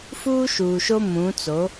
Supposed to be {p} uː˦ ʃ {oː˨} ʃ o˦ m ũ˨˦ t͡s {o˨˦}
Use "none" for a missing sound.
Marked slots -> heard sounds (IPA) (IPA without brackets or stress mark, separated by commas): f, uː˨, o˨˦